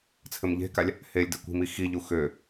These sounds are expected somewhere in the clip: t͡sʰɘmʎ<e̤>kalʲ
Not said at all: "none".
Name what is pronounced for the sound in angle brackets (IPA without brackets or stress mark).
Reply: e̤